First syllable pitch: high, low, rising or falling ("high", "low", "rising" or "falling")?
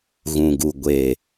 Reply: low